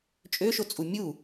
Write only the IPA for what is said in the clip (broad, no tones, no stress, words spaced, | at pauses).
t͡ʃʼøʃot͡sʼu mʲu